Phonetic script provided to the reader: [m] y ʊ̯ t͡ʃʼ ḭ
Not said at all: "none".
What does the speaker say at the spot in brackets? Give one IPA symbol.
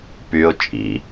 p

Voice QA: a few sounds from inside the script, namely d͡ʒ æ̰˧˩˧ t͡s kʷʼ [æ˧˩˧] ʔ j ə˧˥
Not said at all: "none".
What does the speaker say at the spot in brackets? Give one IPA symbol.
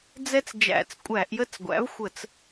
æ˧˩˧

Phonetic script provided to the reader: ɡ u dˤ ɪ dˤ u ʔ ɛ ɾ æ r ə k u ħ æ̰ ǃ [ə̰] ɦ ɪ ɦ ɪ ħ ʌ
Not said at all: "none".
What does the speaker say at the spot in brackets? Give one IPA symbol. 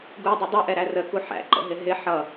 ə̰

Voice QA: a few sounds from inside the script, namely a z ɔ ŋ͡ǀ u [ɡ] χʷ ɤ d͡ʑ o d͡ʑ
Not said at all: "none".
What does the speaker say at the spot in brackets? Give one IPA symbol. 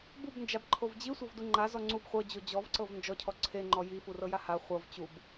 b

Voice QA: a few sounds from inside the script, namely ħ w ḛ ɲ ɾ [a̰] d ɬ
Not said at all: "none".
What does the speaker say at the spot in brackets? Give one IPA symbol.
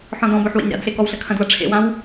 a̰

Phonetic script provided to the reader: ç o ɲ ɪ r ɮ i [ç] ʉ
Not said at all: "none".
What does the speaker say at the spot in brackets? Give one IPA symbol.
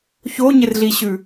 ɕ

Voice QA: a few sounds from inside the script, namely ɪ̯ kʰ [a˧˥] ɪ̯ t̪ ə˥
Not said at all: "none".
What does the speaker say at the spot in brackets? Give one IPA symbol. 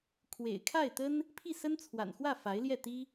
a˥˩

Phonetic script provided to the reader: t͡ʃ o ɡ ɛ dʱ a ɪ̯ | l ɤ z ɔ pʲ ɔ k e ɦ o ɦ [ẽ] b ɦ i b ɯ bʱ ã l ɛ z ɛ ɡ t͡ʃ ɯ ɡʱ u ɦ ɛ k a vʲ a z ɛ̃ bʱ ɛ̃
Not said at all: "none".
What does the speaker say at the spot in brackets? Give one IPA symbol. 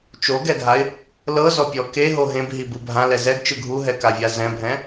ẽ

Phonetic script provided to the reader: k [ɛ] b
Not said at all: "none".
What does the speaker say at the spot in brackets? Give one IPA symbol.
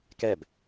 ɛ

